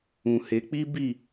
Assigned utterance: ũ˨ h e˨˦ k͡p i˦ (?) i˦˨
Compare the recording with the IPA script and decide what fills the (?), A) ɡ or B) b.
B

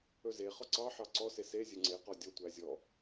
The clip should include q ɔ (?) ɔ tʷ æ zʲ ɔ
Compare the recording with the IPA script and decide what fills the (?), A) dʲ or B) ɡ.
A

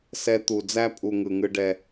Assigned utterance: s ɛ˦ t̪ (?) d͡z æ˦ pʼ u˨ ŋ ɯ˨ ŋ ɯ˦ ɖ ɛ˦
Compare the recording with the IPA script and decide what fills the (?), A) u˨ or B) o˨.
A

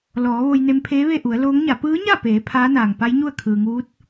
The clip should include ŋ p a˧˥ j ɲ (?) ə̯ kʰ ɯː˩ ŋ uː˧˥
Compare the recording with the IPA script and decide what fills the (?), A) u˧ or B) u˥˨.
B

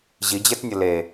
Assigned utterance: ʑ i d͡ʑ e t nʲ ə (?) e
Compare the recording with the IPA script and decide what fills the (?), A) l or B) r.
A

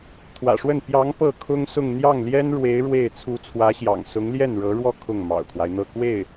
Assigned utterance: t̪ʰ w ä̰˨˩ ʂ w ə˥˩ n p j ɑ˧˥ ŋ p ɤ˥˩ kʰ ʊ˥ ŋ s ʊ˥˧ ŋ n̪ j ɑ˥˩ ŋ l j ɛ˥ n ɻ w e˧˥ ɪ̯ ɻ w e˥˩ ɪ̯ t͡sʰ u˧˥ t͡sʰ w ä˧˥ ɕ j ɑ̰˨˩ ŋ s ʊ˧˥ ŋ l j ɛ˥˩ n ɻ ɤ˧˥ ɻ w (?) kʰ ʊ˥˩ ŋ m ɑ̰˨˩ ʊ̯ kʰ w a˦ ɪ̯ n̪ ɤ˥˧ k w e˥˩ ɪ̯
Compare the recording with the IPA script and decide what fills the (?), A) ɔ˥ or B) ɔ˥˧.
B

